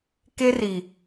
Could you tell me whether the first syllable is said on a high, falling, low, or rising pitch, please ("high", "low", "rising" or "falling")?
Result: high